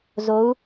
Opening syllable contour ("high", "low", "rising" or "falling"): rising